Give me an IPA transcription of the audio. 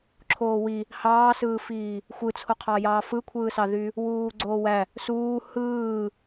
ǁʰoːwi | hɑːsɯːfiː | xʷɯt͡sʰoqʰɑjɑː fɯkʷʰɯːsɑðy | wuːɡ͡ǀoːwæ | suː hɯː

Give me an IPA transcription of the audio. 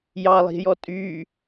jɑlˠi̤jɔ tʼy

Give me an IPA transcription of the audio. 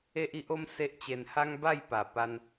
e˦ʔi˦ʔo˦m se˦ʔt͡ɕe˧n ha˦ŋba˥˧jpa˨˩ pa˧n

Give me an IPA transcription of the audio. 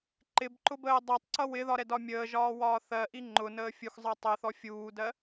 ǃɪbǃʊbəː dˤɜtˤǀʌ wɪðɒɾɛdɒ mʲəːʒɒːwɒː θɜʔi ŋ͡ǃʊnəː fʲuxzˤɜ tˤɛθɔ fʲuːdɜ

